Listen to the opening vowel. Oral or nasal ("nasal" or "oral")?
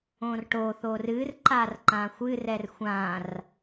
nasal